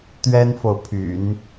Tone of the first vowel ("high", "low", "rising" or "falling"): high